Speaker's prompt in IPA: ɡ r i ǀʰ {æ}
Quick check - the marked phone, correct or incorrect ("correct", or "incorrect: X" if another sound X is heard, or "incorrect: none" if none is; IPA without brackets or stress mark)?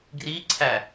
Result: correct